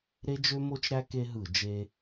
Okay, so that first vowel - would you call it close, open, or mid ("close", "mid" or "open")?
mid